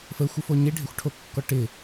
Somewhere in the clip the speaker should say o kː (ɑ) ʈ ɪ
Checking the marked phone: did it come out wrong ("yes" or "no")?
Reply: yes